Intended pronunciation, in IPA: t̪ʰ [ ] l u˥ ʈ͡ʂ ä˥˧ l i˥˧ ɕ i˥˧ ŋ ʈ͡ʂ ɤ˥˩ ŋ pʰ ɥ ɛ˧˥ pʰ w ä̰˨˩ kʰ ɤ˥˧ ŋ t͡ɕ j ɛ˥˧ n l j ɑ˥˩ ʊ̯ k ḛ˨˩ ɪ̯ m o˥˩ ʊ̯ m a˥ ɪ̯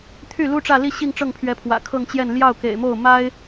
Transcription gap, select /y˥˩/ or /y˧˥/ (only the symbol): y˥˩